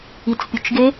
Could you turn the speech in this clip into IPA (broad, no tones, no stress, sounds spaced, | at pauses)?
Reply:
i t͡s pʲ ʊ t͡ʃ ɡ e